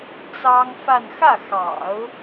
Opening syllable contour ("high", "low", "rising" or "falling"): high